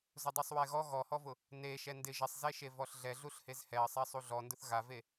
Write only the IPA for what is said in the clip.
z ʊ dˤ u sˤ w ɛ ɣ ɔ ɣ ɔ h ɔ v ʊ | n e ʃ ɛ n d ɪ ʒ ɪ sˤ z e ʃ e v ɔ ɬ ɮ ɛ ɮ u ɬ h e z h ɛ ə̯ sˤ ɛ sˤ u ɮ ɔ n d ʊ θ ɣ a v e

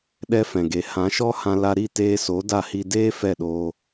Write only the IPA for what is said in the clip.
ɗ ɛ˧ f ɛ̃˨ ɡ e˨ h ã˨˦ ʃ ɔ˦ h ã˧ l a˧ ɾ i˦˨ t eː˧ s o˨˦ d a˦˨ h i˧ d eː˦ f ɛ˦˨ ɗ oː˧

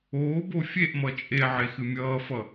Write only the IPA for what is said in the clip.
oː b o fʲ e ʔ m ʌ t͡ʃʼ e ʕ e x ɨ mʲ ʌː f ʌ

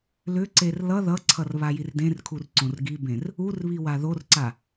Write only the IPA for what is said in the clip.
l ʏ ǀ e r l ʌ ð ʌ ǀʰ ʌ r β a j i r d ẽ r kʰ u r ǀ õ r ɡ i b ẽ r | u r β i w a ð o r ǀ a

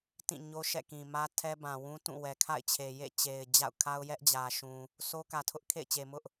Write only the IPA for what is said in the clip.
t ĩ˦˨ ɲ o˦ ʃ ɛ̰˦˨ k ĩ˨ m ä˦ tʰ ɛ˦ b ã˨ w ũ˦ t ũ˦˨ w ɛ˨ kʰ a̰˦˨ ɪ̯ t͡ɕʰ e˨ j ḛ˦˨ t͡ɕ e˨ ɪ̯ d͡ʑ a̰˦˨ ʊ̯ kʰ a˦ ʊ̯ j ɛ˦ ʔ d͡ʑ ä˨ ʃ ũ˨ | sʰ o˦ k ä˨ tʰ ʊ˦ ʔ kʰ ḛ˦˨ ɪ̯ t͡ɕ e˨ m ʊ˦ ʔ

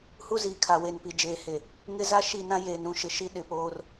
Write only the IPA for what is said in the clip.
h u˦ z iː˨ kʰ a˨ w e˨ n p i˨ d͡ʒ eː˨ h e˨ | ŋ ɪ˦ z a˦ ʃ i˦˨ n ã˦ j eː˨ n ɾ ũ˦ ʃ ɪ˨ ʃ i˦ ɗ ɪ˨ p oː˦ r

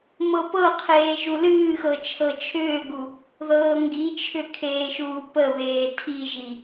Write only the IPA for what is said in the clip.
m ɤ p ɤ qʰ eː ʒ u l ɨː x ɤ t͡ʃʰ ɤ t͡ʃʰ ʏː ɡ u | ð ɤː ŋ ɡ i t͡ʃʰ ʏ kʰ eː ʃ uː p ə β eː tʰ i ʒ i

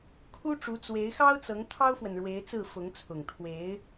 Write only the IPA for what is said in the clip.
kʰ u˥ ʈ͡ʂ u˧˥ t͡s w e˧˥ ɪ̯ x ɑ˥ ʊ̯ t͡s ɤ˧˥ ŋ t̪ʰ ɑ˥ ʊ̯ f w ə˨ n ɻ w e˧˥ ɪ̯ t͡s ɹ̩˥˩ f ʊ˧˥ ŋ t͡sʰ ʊ˨˩ ŋ t̪ʰ w e˧˥ ɪ̯

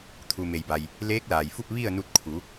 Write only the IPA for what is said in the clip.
t̪ʰ u˩ m e˩ j b a˩ j | l eː˧˥ k̚ l aː˩ j f u˥˨ p̚ ʋ i˥˨ ə̯ n u˧ t̚ kʰ u˩˧

